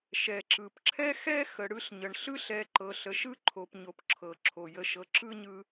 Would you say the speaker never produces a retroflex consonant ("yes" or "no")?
no